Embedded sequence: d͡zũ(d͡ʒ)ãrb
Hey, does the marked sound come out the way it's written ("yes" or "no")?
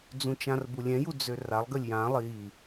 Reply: no